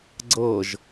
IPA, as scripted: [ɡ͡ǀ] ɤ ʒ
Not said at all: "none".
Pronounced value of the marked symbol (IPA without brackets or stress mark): ɡ͡ǀ